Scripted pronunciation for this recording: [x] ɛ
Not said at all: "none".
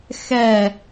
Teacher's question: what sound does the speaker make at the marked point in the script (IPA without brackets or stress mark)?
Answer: x